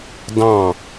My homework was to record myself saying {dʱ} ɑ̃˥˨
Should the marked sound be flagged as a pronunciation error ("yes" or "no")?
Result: yes